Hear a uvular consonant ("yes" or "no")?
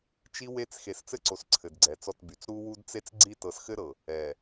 no